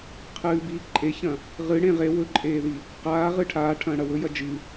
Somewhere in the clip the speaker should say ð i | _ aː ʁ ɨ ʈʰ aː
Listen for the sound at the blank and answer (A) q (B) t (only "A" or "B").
A